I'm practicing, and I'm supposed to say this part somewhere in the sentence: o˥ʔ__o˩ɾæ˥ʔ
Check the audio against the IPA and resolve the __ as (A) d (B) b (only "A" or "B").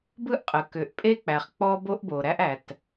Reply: B